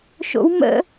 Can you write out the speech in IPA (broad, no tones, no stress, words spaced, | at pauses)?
ʃo̰w mə̰